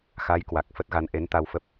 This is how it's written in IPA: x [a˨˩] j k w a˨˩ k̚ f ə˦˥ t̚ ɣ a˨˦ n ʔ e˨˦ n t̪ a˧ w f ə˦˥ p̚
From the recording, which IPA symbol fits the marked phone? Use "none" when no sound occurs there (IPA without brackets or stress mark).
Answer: a˨˦